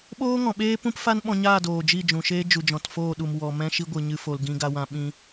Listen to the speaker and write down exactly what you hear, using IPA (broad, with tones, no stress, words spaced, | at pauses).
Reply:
ɓoː˦ ŋɔ̃˨ɓeː˦pũ˦p fa˦nɓɔ̃˧ɲaː˦˨ doː˨d͡ʒi˦˨d͡ʒũ˨ʃeː˦ d͡ʒu˨d͡ʒɔ̃˨tfoː˦˨ɗu˨m wɔ˨mɛ̃˧ʃi˧ ɡʷɨ˨ɲɨ˧fo˨l ɡĩ˧ɡa˧wã˧ ɓĩ˧